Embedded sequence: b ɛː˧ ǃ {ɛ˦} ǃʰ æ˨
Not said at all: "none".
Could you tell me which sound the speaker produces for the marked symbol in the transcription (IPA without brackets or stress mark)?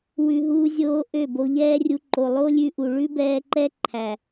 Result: ɛ˦